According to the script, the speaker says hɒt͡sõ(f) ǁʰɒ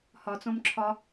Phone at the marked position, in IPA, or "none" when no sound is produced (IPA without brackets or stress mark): m